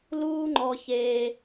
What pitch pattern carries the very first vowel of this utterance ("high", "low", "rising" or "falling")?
high